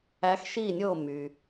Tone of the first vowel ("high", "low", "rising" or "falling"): rising